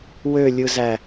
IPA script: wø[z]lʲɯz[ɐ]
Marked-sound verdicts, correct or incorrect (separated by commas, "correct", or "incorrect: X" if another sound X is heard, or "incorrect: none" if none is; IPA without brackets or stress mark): incorrect: none, incorrect: æ